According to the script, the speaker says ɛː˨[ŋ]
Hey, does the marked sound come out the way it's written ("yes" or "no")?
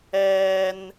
no